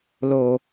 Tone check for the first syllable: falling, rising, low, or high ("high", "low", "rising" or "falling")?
low